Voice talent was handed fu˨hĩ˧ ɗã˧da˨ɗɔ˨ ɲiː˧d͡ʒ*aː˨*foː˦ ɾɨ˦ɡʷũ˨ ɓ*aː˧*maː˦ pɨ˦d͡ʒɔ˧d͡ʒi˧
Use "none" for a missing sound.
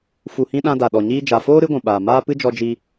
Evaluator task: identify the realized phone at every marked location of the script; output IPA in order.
a˨, aː˨

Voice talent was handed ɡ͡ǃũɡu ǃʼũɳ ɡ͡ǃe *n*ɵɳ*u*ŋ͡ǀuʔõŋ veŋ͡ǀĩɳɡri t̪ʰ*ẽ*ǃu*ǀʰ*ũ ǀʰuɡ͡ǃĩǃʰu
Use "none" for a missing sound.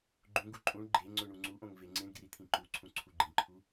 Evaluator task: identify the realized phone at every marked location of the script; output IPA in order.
ŋ͡ǀ, u, ĩ, ǀʰ

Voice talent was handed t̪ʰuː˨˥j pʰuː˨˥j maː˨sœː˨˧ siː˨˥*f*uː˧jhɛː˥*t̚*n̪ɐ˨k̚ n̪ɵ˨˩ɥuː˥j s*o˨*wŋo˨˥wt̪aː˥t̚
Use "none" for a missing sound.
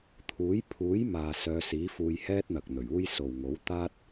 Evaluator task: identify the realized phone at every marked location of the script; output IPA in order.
f, t̚, o˨

